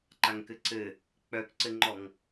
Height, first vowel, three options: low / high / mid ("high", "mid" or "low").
low